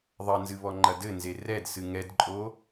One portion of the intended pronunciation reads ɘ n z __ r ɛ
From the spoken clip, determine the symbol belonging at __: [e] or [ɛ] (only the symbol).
e